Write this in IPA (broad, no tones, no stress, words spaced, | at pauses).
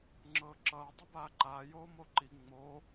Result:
ŋ͡ǁɤːǁʌː dˤɤbaːǃaː joːmoǃi ŋ͡moː